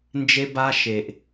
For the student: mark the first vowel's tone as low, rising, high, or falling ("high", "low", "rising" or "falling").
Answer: high